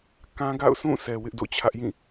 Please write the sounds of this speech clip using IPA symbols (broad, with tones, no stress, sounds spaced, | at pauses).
k ã˦ ɡ a̰˦˨ ʊ̯ sʰ ũ˦˨ s ɛ˨ w ɪ˦ ʔ d o̰˦˨ t͡ɕʰ ä˦ ʔ j ĩ˦˨